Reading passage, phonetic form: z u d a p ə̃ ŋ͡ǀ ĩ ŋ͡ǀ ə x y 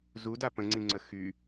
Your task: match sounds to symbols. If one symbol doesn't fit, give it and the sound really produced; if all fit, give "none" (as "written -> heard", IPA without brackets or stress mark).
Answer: none